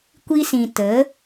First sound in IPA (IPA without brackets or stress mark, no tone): kʷ